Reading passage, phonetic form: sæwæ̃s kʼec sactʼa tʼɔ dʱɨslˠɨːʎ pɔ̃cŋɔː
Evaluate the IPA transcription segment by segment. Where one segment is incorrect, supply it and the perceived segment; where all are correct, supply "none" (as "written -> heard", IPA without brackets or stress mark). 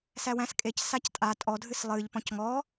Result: none